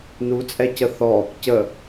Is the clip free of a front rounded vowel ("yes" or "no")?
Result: yes